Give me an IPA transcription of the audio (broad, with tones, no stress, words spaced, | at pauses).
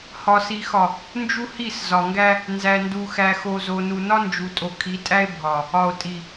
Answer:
hɒ˨si˨xɒ˨ | nd͡ʒu˦hi˦˨s zɒ˨ŋɡæ˦ | nzæ˨ndu˨xæ˨ xo˨zo˨ nu˨nɒ˦nd͡ʒu˨ tʼo˨kʰi˨˦tʼæ˦e̯ bʱɒ˨ | ɒ˨o̯tʼi˨